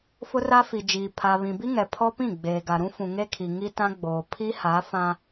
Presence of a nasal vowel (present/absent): present